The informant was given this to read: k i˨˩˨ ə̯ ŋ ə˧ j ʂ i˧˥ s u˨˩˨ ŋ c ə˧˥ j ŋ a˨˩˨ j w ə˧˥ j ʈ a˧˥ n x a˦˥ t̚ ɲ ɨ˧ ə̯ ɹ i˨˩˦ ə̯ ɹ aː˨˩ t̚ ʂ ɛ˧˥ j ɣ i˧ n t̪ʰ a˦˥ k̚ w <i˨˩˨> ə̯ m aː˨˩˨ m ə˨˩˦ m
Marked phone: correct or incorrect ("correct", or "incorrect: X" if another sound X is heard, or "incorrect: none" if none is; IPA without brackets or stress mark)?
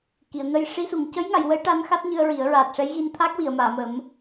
correct